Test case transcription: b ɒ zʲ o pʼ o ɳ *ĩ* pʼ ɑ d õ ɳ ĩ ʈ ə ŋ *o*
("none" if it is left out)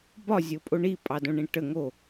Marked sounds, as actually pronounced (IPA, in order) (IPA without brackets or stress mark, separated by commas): i, o